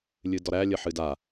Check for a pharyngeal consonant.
present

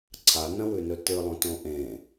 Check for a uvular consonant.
absent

